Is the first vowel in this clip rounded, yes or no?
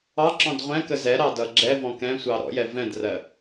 no